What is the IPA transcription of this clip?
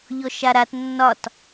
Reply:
ʎ ɔ ʃ a ɾ a t nː ɒ t

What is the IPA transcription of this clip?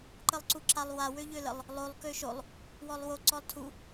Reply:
ǃ ə lˠ ǀ u ǁ a lˠ w a w ø ʎ ø l ə lˠ | lˠ o lˠ k ø ʃ o lˠ | w ɔ lˠ w o ǀ ɔ lˠ tʰ u

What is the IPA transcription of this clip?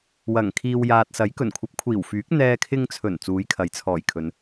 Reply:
w ɐ˨˩ ŋ kʰ iː˨ w j aː˨ t̚ s ɐ˨˥ j k ɵ˨˩ n kʷʰ ɐ˨˥ p̚ kʷʰ iː˨˩ w f yː˨˥ k̚ n̪ ɛː˧ kʰ ɪ˧ ŋ t͡sʰ ɵ˨˩ n t͡s uː˨˥ j kʰ ɐ˨˥ j t͡sʰ ɔː˨˩ j kʰ ɵ˨˧ n

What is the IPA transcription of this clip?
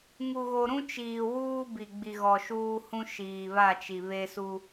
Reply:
ŋ u˨ ɣ o˨ ɾ ũ˦ t͡ʃ iː˨ w uː˦ b i˨ ɡ͡b i˨ ɣ ɔ˨ ʃ uː˦ h ũ˦ ʃ iː˨ β a˦˨ t͡ʃ i˨ β e˦ s u˦

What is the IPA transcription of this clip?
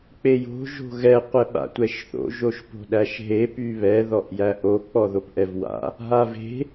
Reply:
k͡p e j o̤ ʒ o̤ ɣ ɛ qʷ ɛ ɓ a̰ tʷ ɛ ʃ θ o̰ ʒ o ʃ p o̤ ɗ æ ʃ ɦ e p y β ɛ ð ɔ ʔ j æ ʔ o k͡p ɔ ð o p ʔ ɛ v w a̰ | ɦ a v e̤

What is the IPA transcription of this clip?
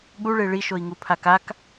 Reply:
ɠ u ɭ e ɭ i ʃ o i̯ ŋ u pʰ a k a k

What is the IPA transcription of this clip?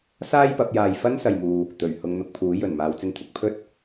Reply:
s aː˥ j p ɐ˨˥ p̚ j aː˧ j f ɐ˥ n s ɐ˨ j m uː˨ | t̪ ɵ˨˩ ɥ h ʊ˧ ŋ n̪ ʊ˧ k̚ pʰ uː˨˥ j ɵ˨˩ n m aː˨˧ w t͡s ɪ˧ ŋ t̪ʰ ɪ˧ k̚ pʰ ɵ˥ t̚

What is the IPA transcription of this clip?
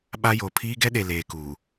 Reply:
ɓ a˦ j o˨ pʰ iː˦ ɡ ɛ˦ ɗ e˨ l eː˨ k uː˨

